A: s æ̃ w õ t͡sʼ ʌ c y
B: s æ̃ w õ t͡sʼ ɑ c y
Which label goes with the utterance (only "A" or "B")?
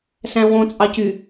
B